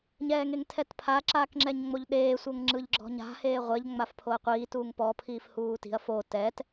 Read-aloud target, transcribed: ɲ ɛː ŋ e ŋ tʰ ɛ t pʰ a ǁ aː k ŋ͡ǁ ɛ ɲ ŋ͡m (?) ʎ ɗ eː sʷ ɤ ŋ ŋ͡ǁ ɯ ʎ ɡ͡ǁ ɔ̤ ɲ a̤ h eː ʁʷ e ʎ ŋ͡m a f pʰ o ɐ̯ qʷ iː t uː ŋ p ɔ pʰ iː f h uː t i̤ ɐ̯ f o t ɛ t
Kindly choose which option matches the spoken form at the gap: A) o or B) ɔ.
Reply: A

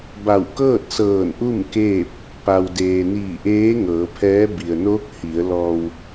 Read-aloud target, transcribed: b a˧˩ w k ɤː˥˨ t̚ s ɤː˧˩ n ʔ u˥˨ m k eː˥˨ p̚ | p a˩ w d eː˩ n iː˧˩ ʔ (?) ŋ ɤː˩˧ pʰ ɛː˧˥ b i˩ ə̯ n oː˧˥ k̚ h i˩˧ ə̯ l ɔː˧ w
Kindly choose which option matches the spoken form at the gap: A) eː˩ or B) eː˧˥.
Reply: B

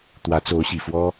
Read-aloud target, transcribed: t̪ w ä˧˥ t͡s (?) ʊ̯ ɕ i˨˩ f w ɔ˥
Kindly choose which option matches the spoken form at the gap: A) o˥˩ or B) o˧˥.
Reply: B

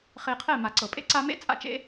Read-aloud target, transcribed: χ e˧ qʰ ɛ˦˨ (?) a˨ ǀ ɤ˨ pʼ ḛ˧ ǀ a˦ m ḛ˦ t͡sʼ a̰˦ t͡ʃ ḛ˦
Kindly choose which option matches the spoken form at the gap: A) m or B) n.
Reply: A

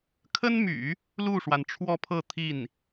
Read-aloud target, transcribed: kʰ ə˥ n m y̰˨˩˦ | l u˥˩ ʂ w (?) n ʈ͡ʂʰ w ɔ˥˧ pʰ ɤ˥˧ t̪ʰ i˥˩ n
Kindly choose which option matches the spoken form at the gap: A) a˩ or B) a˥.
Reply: A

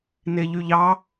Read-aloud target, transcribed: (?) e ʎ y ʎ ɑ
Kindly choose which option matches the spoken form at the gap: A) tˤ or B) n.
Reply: B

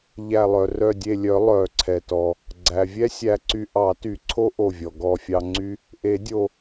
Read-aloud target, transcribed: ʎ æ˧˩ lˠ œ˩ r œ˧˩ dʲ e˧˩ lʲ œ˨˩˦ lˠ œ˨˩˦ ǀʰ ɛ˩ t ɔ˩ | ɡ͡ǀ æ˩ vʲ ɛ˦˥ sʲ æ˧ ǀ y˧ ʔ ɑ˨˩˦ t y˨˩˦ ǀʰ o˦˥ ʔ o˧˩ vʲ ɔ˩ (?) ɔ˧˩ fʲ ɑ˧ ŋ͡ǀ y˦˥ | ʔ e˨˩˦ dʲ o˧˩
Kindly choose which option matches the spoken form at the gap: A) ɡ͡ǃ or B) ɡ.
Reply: B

